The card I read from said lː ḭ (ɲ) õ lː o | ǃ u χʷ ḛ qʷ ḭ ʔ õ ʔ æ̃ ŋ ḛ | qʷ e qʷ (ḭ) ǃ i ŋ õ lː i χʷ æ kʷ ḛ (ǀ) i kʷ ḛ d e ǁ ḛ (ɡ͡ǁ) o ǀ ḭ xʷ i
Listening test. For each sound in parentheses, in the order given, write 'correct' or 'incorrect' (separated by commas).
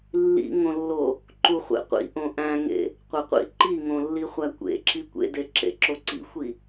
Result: incorrect, correct, incorrect, incorrect